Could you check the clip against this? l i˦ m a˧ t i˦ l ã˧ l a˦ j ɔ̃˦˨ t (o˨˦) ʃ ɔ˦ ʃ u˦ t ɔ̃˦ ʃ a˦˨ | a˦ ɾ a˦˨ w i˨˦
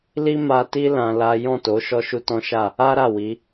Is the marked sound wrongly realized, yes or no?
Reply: no